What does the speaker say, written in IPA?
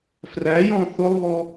f r æ j ɔ̃ θ ʊ lˠ β ɔ

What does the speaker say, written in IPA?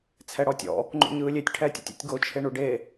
t͡sʰ ɛ ɽ ɔ tʲ ɔ̰ | ŋ͡ǃ ṵ ɲ ɯː lʲ e tʲ ʈʰ ɛː tʲ ṵ tʲ ṵ tʲ ɡ o t͡ʃʰ e ɳ u ɖ e

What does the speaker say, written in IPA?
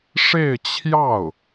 ʂ e˥˧ ɪ̯ t͡ɕʰ j ɑ˥˩ ʊ̯

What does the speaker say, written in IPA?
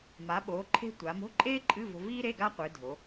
m a˩˧ ɓ o˩˧ ǃʰ e̤˧ tʷ a˩˧ m o̤˧˥˧ ǃʼ eː˥ ǃʼ ɨ˧˥˧ v o̤˧ v iː˥ ɾ e˧˥˧ ɡ a˥ qʷ ɨ˩˧ dʱ o˩˧

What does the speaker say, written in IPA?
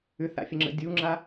ʏ θ a̰ fʲ ə ŋ͡ǁ ə̰ dʲ u ŋ͡ǁ a

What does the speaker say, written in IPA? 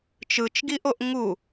t͡ʃ ɯ t͡ʃ ɡ i ʔ o ʔ ŋ u

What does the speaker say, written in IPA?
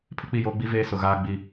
pʰ ɪ˦ k͡p i˦˨ j oː˦ ɡ͡b i˦ v eː˦ s ʊ˨ ɣ aː˦ ɡ͡b i˦˨

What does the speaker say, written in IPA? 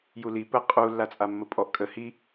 j u l i p ə qʼ u lː a t͡sʼ a mː ə pʼ ɔ ʔ kʼ ə h i

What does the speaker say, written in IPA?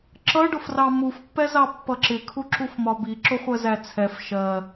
ǁ ʌ ɖ ʊ f r ɑ m u f pː ɛ z ɑ pː ʌ ǁ ɪ kʰ u ǁ u f m ɒ b i ǁ ʊ χʷ ɜ z æ t͡sʰ ɛ f ʃ ɜ

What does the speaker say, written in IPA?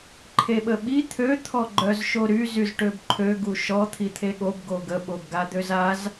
ǃʰ e ɓ ə ɓ i t̪ʰ ø t̪ʰ ɔ ɡ͡ǃ œ z ʃ o ɾ y z y z ʈ ø b ǃʰ ø ɡ u ʃ ɔ t̪ʰ i t̪ʰ e ɠ o b ɡ o ɡ ə ɓ o b ɡ a d̪ ø z a z

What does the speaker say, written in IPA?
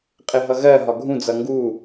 qʼ ɪ ɦ ʌ ɣ ɜ ɦ ɒ ɡʱ ũ d͡z ʌ ŋ ɡ u

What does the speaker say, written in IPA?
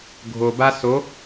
ɡʱ o b a s o

